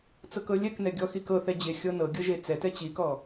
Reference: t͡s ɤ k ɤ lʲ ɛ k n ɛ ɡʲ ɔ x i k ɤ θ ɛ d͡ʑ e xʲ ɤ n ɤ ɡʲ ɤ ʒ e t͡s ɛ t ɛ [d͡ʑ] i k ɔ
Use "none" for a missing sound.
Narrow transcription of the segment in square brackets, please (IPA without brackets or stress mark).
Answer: t͡ɕ